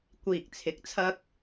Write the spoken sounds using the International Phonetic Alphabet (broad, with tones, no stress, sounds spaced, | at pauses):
kʷ iː˨ k̚ t͡sʰ ɪ˨˥ k̚ t͡sʰ ɐ˥ k̚